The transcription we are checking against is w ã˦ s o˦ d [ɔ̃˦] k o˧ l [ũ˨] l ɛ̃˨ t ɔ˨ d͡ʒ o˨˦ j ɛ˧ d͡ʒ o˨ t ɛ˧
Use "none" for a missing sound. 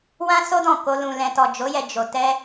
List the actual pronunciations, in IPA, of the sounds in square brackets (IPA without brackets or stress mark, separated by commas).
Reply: ɔ̃˦˨, ũ˨